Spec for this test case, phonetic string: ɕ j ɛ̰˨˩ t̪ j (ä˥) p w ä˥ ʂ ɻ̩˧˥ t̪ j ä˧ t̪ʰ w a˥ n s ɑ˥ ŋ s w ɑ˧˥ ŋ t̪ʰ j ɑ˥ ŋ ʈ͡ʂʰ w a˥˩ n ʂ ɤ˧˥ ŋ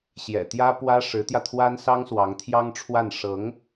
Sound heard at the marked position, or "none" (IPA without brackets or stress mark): ä˥